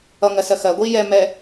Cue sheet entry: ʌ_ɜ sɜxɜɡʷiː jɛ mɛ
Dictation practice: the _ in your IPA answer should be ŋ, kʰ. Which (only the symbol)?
ŋ